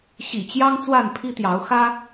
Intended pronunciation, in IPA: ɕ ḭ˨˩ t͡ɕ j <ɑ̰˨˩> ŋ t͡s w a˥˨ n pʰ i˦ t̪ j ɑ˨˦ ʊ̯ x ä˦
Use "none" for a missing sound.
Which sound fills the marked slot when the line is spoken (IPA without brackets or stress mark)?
ɑ˦